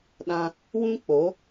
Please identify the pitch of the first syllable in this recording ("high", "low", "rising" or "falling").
high